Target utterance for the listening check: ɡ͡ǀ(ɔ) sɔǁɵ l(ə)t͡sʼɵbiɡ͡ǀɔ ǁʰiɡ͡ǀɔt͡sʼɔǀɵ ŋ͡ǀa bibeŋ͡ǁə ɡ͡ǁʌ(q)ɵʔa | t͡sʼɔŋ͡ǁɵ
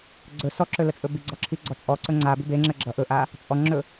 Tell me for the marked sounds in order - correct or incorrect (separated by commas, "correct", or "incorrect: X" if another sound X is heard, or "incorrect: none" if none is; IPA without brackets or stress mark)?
incorrect: ɵ, correct, incorrect: ʔ